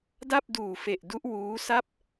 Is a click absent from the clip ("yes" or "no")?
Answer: yes